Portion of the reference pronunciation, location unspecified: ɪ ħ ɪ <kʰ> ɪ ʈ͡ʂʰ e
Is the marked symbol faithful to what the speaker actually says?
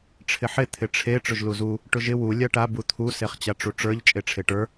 no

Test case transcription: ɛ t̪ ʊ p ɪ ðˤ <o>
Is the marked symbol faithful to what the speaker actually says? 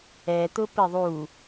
no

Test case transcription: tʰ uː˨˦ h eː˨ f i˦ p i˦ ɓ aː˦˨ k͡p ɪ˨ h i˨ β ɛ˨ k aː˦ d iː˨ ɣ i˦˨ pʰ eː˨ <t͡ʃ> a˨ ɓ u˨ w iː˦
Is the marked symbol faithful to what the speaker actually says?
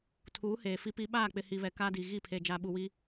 no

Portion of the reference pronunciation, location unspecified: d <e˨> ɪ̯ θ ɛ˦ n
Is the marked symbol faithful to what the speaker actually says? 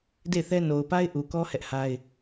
no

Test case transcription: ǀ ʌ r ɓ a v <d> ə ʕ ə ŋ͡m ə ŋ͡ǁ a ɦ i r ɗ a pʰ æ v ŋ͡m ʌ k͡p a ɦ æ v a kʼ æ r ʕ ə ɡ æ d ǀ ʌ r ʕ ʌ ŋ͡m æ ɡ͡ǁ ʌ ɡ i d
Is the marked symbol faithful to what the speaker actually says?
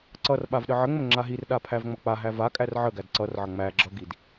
no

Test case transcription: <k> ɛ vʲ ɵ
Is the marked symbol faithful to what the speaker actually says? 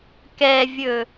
yes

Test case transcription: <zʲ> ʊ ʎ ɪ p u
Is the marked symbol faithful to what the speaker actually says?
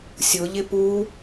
no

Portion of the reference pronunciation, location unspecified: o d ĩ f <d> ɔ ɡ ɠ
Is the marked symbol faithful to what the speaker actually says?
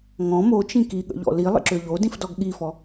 yes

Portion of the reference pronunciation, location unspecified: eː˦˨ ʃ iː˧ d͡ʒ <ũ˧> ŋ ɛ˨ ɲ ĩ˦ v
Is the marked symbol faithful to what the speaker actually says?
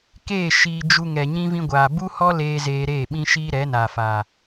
no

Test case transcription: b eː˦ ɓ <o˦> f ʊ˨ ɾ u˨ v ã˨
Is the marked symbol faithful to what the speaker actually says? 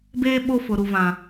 yes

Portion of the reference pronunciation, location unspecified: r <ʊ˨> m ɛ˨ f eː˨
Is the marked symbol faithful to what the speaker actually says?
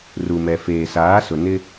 no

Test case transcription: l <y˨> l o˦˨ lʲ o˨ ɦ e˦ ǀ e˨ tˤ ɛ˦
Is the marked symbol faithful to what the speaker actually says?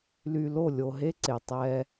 yes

